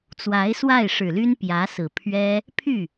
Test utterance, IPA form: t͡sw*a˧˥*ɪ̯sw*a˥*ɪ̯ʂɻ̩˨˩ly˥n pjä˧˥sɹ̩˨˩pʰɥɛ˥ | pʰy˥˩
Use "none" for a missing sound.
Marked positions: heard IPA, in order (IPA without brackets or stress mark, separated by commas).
a˧˥, a˥˩